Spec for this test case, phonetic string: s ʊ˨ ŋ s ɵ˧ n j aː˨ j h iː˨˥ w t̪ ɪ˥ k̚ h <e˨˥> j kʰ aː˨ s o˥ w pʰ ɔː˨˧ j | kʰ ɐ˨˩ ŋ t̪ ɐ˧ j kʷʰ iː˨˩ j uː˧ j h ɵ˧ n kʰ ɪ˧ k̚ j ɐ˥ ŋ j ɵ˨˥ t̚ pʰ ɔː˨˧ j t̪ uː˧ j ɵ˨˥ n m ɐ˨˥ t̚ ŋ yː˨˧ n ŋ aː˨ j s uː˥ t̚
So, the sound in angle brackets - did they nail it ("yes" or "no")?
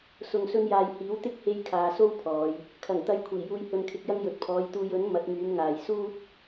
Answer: no